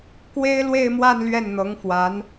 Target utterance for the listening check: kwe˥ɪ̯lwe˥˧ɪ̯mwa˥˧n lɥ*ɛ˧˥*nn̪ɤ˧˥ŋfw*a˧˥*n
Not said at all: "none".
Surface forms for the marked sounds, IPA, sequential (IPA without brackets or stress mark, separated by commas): ɛ˥˩, a˧˥